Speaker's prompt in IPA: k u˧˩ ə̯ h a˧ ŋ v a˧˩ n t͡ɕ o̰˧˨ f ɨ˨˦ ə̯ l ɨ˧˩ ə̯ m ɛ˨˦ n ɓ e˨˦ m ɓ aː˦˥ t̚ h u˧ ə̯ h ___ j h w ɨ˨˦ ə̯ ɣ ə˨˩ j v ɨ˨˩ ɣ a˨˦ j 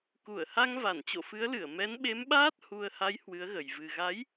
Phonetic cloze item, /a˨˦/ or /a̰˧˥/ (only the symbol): a˨˦